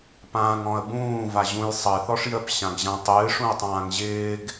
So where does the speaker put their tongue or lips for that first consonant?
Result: lips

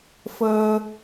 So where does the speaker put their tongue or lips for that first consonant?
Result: lips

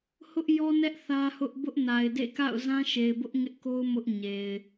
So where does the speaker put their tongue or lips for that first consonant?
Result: throat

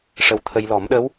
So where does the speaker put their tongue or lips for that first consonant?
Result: retroflex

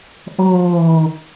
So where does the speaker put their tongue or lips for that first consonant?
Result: throat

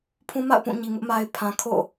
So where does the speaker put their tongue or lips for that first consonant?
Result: lips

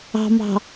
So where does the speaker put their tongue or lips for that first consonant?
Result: lips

